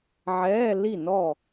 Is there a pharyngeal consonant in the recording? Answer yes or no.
yes